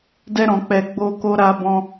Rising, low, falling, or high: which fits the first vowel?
high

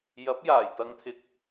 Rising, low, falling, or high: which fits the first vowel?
rising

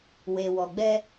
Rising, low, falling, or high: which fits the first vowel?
low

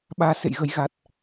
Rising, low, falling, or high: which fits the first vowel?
low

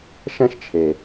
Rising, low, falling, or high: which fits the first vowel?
high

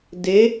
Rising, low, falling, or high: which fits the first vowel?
rising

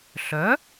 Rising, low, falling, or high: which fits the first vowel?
rising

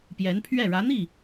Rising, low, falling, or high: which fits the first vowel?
rising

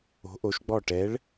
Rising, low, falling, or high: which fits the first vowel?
rising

